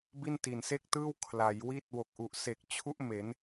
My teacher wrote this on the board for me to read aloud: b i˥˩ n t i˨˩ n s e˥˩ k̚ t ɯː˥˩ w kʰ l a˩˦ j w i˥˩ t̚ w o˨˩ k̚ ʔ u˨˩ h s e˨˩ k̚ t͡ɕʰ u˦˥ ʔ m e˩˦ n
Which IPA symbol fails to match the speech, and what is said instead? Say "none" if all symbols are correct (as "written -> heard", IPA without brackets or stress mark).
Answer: h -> ʔ